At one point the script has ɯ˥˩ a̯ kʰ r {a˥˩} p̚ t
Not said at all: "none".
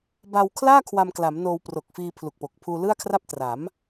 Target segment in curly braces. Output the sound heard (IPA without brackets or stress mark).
a˥˩